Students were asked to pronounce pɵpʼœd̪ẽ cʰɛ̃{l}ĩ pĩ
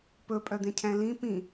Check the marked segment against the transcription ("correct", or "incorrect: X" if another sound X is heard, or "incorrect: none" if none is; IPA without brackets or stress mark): correct